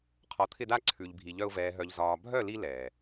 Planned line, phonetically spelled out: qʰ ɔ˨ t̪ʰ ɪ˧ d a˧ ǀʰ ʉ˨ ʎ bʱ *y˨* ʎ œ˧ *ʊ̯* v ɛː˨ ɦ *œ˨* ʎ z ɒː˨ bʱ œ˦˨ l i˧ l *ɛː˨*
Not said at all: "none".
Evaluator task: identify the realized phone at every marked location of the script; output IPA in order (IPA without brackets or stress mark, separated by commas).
i˨, ʊ̯, œ˨, ɛː˨